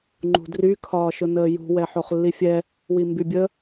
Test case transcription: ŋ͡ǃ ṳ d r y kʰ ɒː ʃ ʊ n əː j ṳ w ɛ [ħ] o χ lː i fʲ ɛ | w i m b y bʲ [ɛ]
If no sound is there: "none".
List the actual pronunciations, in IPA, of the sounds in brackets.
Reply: ħ, ə

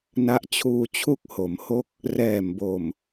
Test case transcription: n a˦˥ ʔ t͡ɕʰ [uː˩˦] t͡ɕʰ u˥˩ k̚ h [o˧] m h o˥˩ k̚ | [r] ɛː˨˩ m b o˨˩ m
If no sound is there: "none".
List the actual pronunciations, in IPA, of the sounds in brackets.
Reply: uː˧, o˩˦, r

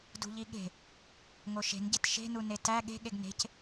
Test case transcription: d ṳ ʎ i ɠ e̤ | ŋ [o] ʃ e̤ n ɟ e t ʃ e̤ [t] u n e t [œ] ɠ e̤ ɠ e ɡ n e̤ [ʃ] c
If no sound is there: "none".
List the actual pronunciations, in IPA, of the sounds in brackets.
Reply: o, n, æ, none

